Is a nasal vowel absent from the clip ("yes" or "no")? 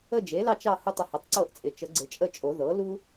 yes